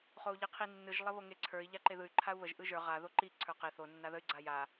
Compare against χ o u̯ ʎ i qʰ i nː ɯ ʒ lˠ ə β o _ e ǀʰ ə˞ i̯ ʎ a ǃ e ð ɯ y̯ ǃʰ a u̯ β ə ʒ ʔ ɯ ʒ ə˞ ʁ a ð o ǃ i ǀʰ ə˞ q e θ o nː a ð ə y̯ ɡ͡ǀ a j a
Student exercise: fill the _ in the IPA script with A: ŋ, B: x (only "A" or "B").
A